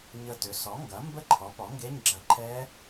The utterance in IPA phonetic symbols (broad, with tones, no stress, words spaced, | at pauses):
ɲə˧˩tʏ˩˥ sɔ˩˥ ŋɡɐ˩˥mbə˦˥ǃʰɔ˩˥ pɔ˩˥ŋɡe˧˥˧ɲɡ͡ǁɐ˧˩ ǃʰɛ˦˥